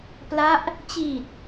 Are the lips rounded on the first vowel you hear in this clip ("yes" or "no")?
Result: no